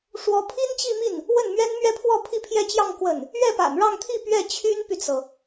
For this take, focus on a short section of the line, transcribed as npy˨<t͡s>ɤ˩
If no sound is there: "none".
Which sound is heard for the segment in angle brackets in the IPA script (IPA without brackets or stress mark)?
t͡s